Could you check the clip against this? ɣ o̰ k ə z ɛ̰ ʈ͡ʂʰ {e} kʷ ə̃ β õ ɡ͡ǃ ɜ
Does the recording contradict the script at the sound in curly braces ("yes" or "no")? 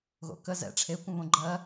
no